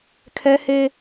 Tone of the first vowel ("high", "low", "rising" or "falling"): high